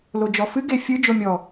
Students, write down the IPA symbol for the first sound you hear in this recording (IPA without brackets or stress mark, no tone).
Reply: l